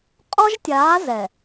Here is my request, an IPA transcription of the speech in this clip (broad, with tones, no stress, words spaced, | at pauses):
qʼɔ˦ʒtʲaː˨˦ zɛ˨